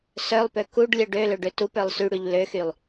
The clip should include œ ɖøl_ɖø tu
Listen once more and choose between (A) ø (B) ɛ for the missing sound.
A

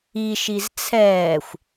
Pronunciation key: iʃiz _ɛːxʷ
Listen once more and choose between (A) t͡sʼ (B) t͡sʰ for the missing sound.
B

